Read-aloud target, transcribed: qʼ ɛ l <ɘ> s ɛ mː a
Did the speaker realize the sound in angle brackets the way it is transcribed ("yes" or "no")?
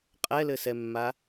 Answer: yes